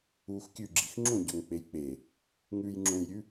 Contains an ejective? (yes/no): no